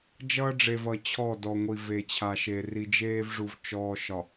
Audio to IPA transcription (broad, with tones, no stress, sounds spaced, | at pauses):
d͡ʒ ʌː˦ ɖ͡ʐ e˨ v ʌ˨ t͡ɕʰ ɔ˦˨ d ɔ˨ ŋʷ i˨ v e˨ t͡ɕʰ a˨ ʃ eː˨ r i˨ d͡ʒ eː˦ v ʐ u˨ v t͡ʃ ɔː˨ ʃ ɒ˨